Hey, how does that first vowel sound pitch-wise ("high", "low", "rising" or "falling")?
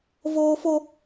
high